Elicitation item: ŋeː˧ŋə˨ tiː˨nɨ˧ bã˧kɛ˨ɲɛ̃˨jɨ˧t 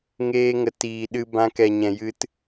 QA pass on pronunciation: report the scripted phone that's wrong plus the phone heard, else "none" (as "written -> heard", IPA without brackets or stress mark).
n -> ɗ